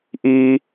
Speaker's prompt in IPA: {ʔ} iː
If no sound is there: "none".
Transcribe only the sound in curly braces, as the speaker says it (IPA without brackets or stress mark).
ʔ